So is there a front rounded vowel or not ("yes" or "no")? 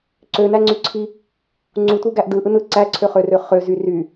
yes